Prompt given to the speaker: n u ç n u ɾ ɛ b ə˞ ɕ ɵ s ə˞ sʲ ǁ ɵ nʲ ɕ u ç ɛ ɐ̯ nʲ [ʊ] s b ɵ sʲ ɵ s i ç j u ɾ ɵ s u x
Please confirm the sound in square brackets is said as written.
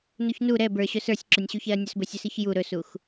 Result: yes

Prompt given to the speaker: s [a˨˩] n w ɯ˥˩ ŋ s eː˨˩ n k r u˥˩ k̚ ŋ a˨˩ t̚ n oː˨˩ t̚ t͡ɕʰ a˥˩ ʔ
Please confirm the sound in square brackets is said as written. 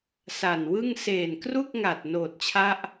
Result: yes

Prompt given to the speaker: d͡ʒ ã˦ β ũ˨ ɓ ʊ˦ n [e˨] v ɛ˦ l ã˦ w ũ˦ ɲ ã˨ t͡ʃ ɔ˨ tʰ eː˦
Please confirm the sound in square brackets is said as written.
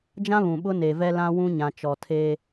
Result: yes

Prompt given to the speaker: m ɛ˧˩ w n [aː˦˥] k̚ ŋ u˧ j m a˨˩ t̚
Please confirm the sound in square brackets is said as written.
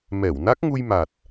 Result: no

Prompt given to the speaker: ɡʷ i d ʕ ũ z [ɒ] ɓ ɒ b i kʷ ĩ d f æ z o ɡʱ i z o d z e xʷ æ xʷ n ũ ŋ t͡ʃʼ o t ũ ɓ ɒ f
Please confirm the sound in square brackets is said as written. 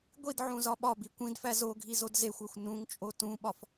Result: yes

